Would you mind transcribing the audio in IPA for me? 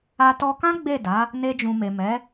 a˧tɔ˧kã˦ ɡ͡be˦˨ da˨˦ | ne˧d͡ʒũ˨me˨ mɛ˨˦

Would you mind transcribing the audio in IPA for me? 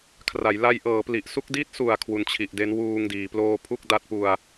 kʰra˩˦jla˧jʔɤː˩˦ pli˨˩ʔsu˥˩k̚ di˦˥t̚su˨˩a̯ kʰwu˨˩nt͡ɕʰi˨˩ʔde˦˥n wuː˧ŋdiː˩˦ ploː˧ pʰu˥˩k̚da˦˥t̚pu˧a̯

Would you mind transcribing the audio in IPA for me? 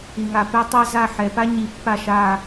i˨ŋa˨pɛ˥tˤa˥ za˦˨ħɛ˨ pa˥ɲi˨pːa˦˨ʃa˦˨

